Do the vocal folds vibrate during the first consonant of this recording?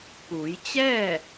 no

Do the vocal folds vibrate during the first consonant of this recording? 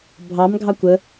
yes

